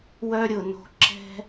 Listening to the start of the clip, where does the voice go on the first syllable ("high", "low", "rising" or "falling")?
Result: high